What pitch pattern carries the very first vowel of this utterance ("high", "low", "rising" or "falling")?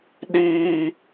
high